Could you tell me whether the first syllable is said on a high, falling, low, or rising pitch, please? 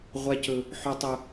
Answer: high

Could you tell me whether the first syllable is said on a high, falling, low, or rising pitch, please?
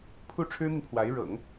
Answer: falling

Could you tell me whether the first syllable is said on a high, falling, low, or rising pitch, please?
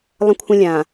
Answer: high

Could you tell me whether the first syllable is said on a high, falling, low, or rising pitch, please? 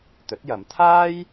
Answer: rising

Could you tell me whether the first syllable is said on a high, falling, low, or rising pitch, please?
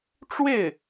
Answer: falling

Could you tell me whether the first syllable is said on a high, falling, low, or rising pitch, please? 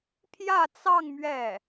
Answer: falling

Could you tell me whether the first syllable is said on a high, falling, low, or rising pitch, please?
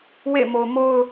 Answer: falling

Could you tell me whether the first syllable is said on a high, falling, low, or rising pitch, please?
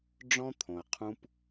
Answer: high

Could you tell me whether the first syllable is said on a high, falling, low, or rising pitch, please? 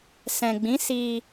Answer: low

